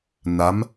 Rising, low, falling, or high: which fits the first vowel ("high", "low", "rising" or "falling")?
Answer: rising